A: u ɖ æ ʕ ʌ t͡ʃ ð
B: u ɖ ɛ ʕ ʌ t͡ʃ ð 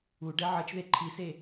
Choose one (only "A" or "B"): B